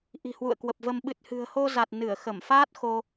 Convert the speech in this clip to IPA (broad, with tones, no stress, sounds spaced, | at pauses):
ʔ i̤˨˩ h w ṵ˧˨ ə̯ k w ə˨˩ p̚ v ə˧ m ɓ ɨ˨˩ t̚ h ɨ̤˨˩ ə̯ h o˧ z a˨˩ t̚ n ɨ˧˩ ə̯ x ə˧˩ m f aː˦˥ t̚ x o˧